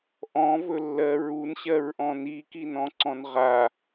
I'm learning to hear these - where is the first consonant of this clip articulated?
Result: throat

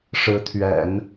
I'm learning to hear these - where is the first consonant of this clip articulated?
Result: retroflex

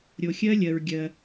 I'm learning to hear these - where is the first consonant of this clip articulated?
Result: tongue tip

